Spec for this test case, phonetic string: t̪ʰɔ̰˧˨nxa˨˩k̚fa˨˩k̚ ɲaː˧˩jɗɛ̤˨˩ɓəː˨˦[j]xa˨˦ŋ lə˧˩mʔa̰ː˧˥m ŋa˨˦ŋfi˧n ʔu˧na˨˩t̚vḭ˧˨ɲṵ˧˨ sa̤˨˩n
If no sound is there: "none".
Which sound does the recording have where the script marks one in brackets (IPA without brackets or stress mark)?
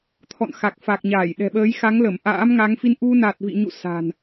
j